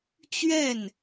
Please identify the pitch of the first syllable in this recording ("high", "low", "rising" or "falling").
falling